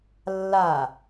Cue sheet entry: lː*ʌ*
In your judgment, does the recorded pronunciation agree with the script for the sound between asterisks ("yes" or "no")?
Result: no